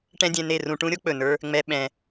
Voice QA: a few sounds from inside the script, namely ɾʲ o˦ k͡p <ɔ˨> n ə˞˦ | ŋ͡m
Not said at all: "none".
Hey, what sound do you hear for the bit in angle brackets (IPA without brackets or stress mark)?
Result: ɵ˨